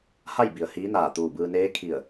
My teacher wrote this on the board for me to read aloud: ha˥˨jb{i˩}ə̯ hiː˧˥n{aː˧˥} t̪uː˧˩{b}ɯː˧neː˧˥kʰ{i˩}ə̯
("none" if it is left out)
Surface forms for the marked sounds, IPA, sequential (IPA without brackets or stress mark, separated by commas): i˩, aː˧˩, b, i˧˩